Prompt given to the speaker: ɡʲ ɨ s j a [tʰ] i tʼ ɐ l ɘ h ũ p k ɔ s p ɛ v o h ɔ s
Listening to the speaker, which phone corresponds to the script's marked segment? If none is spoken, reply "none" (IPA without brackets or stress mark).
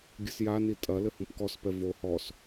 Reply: n